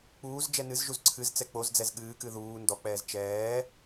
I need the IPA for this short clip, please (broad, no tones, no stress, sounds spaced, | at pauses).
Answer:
k͡p uː z d͡ʒ ɛ n ɨ z ʒ u z ǀʰ ɨ z t͡s ɛ k͡p o z d͡z ɛ z ɠ ɨː k ɨ ð uː n d ɔ k͡p ɛː z t͡ʃ ɛː